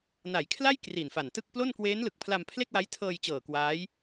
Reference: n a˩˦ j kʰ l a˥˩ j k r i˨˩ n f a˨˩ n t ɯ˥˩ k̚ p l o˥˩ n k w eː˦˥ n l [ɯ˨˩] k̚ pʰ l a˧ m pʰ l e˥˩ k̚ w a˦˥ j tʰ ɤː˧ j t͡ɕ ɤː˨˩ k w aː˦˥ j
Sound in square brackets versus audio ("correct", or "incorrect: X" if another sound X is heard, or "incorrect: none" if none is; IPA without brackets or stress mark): correct